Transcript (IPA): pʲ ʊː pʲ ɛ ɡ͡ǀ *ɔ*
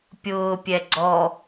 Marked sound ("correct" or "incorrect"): correct